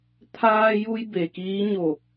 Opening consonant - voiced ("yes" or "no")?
no